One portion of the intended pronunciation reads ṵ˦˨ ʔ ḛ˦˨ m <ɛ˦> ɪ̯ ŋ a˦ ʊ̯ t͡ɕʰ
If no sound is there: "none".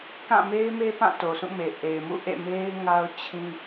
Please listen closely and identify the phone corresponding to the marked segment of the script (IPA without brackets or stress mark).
e˦